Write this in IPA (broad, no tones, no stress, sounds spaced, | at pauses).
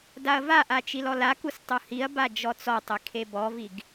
d a ɐ̯ v a ʔ a t͡ʃ i l ɔ l a k u s tˤ u h i ɐ̯ b a d͡ʒ ɔ t͡s ɔ tˤ i kʰ e b ɔ v i ɡ